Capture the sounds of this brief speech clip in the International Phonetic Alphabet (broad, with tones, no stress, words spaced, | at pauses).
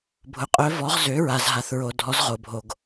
bʱʊ˩qʼœ˩˧ vɔ˩˧ʁ zø˩˧ɹa˩z ɦa˩θɹo˩ dʱɔ˩˧zʁo˩bʱo˩ɡ